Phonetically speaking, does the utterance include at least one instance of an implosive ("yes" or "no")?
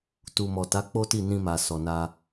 no